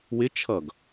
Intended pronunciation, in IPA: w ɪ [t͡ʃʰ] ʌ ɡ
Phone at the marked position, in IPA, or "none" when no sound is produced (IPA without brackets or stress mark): t͡ʃʰ